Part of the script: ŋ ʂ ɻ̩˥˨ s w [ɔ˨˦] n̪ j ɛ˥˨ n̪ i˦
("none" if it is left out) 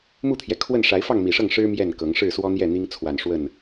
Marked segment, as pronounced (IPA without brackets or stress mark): ɔ˦